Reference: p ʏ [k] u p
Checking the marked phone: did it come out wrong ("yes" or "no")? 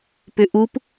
yes